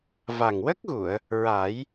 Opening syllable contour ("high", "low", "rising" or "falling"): low